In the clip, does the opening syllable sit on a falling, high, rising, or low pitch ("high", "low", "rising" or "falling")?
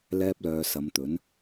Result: high